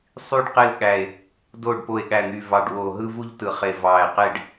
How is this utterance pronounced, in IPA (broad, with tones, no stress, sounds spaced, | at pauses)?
sˤ y˥˧ ɖ q e˥˧ l ɠ æ˧˩ e̯ | d o˧˩ ɖ p o˧˩ e̯ ɠ æ˧˩ n̪ y˧˩ v ɑ˧˩ ɖ w o˧˩ ɦ ɯ˥˧ v u˥˧ ʎ t ɯ˧˩ χ e˧˩ v ɑ˧˩ e̯ q e˥˧ ɖ